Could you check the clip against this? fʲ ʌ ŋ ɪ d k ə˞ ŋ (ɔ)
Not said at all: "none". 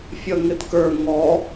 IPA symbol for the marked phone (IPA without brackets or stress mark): ɔ